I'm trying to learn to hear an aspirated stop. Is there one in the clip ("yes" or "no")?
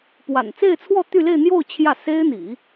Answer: yes